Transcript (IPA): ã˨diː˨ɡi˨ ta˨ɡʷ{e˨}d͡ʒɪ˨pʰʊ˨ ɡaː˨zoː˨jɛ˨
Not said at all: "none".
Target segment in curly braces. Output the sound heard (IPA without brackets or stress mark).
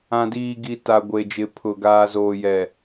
e˨